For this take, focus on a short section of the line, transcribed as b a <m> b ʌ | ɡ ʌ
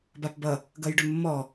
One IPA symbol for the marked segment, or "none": p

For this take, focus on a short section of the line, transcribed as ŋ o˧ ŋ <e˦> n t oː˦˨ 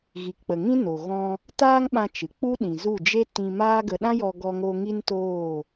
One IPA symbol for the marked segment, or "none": i˦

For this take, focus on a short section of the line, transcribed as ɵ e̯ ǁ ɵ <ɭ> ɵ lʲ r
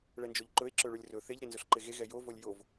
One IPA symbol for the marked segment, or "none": ɭ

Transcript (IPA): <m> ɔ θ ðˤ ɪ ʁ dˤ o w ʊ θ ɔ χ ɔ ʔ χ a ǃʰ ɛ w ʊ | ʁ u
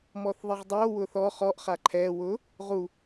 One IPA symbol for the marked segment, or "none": m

